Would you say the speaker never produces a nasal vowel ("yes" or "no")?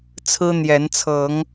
yes